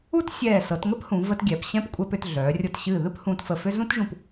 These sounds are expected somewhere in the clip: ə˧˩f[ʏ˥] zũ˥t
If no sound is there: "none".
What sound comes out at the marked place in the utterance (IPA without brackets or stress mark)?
ʏ˥